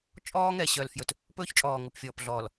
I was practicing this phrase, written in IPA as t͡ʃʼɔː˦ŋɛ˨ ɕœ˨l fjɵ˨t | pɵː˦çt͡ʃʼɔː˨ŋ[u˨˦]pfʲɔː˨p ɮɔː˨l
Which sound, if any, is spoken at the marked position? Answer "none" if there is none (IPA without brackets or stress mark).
u˨